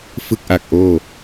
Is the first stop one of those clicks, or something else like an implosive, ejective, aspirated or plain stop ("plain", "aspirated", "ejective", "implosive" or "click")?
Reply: plain